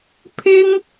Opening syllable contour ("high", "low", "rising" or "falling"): high